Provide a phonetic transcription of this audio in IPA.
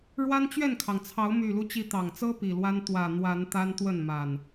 ɻ w a˦ n t͡ɕ ɥ ɛ˥˨ n kʰ ɑ˩ ŋ t͡sʰ ɑ˨˦ ʊ̯ m y˨˩ l u˦ t͡ɕ i˨˦ t̪ ɑ˨˩ ŋ t͡s ɤ˦ p i˨˩ l w a˦ n t̪ w ä˨˩ n̪ w a˨˦ n t̪ a˦ n t̪ w ə˥˨ n m a˨˩ n

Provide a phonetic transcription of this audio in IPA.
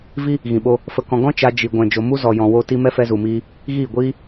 v i˦ | ɣ ĩ˨ ɓ o˧ | f ə˧ k ɔ̃˧ ɡ ɔ̃˦ t͡ʃ a˧ d͡ʒ i˨ ɡʷ ɛ̃˨ d͡ʒ o˨ m u˦ z ɔ˨ j ɔ̃˨ w o˦ t i˦ m ɛ˦ f ɛ˧ z u˨ m iː˧ | ɣ iː˦˨ ɡʷ iː˦

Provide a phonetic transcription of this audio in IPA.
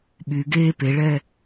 ɓ y ɡ e p e ɭ ɛ

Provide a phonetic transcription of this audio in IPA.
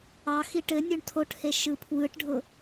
ɑ x i ʈ ɘ nʲ o ɳ tʰ o ʈ h e ʃ ɯ pʰ w ɯ ʈ ɖʱ ʊ

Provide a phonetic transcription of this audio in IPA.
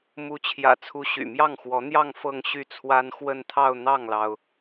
m u˧˥ t͡ɕʰ j ä̰˨˩ t͡sʰ u˧˥ ɕ y̰˨˩ m j ɑ˥˩ ŋ x w ɔ˧˥ n̪ j ɑ˥˧ ŋ f ɤ˥˧ ŋ ɕ y˥˩ t͡sʰ w a˥ n x w ə˥˧ n t̪ʰ ɑ˥˧ ʊ̯ n̪ ɑ˥˩ ŋ l ɑ˩ ʊ̯

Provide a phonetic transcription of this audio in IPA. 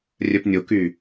rʲ œ p nʲ o k y

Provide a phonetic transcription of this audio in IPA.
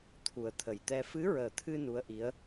t̪ʰ u˨˩ ə̯ t̪ʰ ə˨˩ j t̪ ɛ˧ f ɨ˧˥ ɹ əː˨˩ t̪ʰ ɨ˧ n u˧˥ ə̯ ʔ i˧˥ ə̯

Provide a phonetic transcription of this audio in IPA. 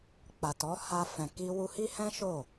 k͡p a˨ t ɔ˨˦ h a˧ f ɛ̃˨ k i˧ w u˧ h i˦ h ɛ̃˦ ʃ o˦˨

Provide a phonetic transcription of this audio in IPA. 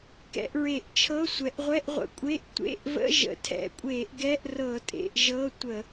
k ɛ̰˧˩˧ ʔ ɹ e˧˩˧ ʔ t͡ʃʰ ɤ˧˥˧ sʷ ɛ˩˧ ʔ ʁʷ ɛ˧˥˧ ʔ ʁʷ ə̰˩˧ kʷʼ e˧˥˧ ʔ tʷ ḛ˧˥˧ ʔ v ə̰˧˥˧ ʒ ə̰˩˧ tʰ ɛ̰˧˩˧ kʷʼ e˧˩˧ ʔ ɡ ɛ˧˥˧ ʔ r ɤ˧˩˧ tʼ ḛ˩˧ ʔ ʒ ɤ˧˥˧ tʷ ə˧˩˧

